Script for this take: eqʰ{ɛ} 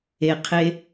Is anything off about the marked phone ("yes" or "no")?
yes